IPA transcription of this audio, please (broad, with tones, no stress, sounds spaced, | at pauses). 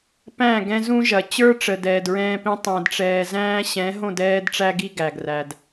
p æ̃˦˨ ɡ ɛ̃˦ z ũ˦ ʒ ɐ˨ t͡ɕ ə˞˦ ʈ͡ʂ ə˨ d ɛː˨ d ɹ ɛ̃ː˧ p ĩ˦ tˤ æ̃˨ d ʈ͡ʂ ɛː˨ z æ̃ː˦ ɕ ɛ̃˨˦ ɦ õ˦˨ d ɛː˧ d ʈ͡ʂ æ˧ ɡ i˧ ɡ æ˨ ɡ r æ˨ d